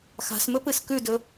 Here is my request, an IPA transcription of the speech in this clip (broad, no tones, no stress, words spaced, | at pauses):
xa̤smɵ pɨskʉdɵ